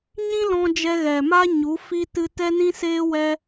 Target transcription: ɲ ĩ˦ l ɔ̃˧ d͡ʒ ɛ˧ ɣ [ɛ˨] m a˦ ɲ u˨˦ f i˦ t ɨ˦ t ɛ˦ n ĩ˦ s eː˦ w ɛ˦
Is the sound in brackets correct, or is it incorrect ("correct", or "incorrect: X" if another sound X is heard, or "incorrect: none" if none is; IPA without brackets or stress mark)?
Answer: correct